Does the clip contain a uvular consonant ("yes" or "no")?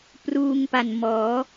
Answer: no